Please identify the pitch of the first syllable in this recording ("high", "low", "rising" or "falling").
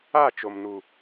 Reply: falling